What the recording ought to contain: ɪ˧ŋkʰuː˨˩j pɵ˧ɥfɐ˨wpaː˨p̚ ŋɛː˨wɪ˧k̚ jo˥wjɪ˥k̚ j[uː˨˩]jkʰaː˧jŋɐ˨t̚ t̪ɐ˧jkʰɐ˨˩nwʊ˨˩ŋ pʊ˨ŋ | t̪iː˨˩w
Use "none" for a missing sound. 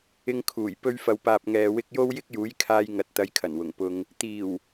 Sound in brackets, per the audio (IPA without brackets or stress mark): uː˨˥